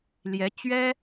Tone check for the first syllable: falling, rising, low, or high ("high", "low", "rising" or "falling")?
rising